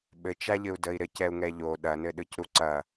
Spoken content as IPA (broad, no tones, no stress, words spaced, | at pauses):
ɓɘt͡ʃaʎɘu̯ dəi̯ɾɘc ɛu̯ŋɛʎo ɗɐnɘɗɯc ɾuǀɐ